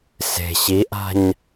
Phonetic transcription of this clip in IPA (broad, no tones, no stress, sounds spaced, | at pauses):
s e̤ ɕ i ʔ a̤ ɲ